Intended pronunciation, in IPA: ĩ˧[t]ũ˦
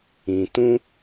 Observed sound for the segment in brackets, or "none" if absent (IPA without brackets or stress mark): t